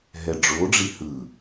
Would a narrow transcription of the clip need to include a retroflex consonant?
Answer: yes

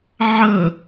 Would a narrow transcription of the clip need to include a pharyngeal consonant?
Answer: yes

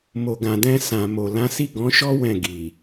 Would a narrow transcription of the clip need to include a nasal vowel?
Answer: yes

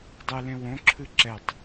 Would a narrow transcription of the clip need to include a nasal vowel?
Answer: yes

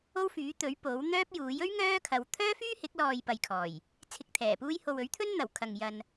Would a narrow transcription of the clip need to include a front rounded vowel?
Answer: yes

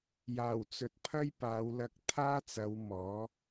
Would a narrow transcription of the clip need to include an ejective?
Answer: no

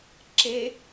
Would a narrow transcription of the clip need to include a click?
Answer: yes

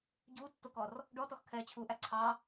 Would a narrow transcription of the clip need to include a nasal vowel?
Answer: no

